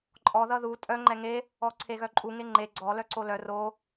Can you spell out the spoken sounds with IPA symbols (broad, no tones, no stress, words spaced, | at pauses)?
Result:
ǃʼɔ ðʌðu tʼœ ŋ͡ǃɛŋe | ɔǀʰeɣœǃʼu ŋeŋ͡ǃe ɡ͡ǀɔ lœǀolœ ro